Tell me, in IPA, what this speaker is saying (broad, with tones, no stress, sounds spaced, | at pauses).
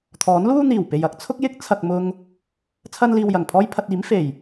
t̪ʰ ɔː˨˥ n l uː˥ n̪ iː˨˩ w p e˨ j ɐ˥ k̚ t͡sʰ ʊ˥ k̚ j ɪ˥ k̚ t͡sʰ ɐ˨ k̚ m ʊ˧ ŋ | t͡sʰ ɐ˥ n l iː˧ w j ɐ˨˩ ŋ pʰ ɔː˥ j pʰ ɐ˧ t̚ iː˨˥ m f e˨˩ j